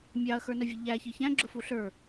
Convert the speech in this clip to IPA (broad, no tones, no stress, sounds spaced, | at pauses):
mʲ ɑ ɐ̯ x ə˞ n ə vʲ ə ʎ æ ç i ç æ̃ ɡ͡ǁ ʊ f u ɬ ə˞